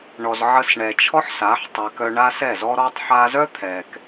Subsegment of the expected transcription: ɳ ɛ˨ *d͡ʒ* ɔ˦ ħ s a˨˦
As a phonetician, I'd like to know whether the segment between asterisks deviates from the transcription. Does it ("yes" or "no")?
yes